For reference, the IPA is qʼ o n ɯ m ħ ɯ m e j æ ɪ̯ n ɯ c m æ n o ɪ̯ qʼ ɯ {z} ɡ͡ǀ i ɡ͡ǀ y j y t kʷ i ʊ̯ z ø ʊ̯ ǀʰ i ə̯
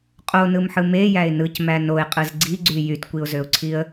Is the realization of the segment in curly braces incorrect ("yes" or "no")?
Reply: no